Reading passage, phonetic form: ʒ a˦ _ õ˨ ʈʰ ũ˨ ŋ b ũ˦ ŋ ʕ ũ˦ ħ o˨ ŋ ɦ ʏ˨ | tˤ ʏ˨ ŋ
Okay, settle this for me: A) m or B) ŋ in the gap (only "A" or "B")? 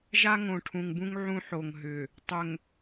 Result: B